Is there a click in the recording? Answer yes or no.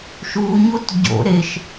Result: no